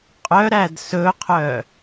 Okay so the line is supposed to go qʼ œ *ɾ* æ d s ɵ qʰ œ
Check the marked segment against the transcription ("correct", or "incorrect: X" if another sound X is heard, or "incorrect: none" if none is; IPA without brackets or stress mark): correct